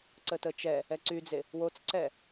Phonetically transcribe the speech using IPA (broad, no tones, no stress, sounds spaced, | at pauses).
ǀ ə t ə t͡ʃ ɛ | ɛ ǀ y d͡z e | w o t͡s ǀ ɛ